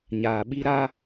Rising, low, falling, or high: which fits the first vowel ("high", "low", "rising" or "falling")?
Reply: low